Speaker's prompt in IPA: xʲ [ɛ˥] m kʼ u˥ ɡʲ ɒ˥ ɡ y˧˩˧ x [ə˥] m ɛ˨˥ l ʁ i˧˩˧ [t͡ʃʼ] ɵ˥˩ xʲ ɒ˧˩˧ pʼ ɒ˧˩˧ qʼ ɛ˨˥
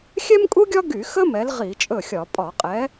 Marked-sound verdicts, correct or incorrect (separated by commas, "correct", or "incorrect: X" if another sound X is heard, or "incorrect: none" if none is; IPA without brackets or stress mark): correct, correct, correct